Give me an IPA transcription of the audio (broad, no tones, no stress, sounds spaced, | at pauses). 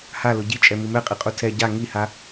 h a l ʊ ɟ i t͡ʃʼ ɛ m i m ɛ qʼ i qʼ u tʰ ɛ ɟ a ŋ i h a